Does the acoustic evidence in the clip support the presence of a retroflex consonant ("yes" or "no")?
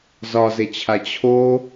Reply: no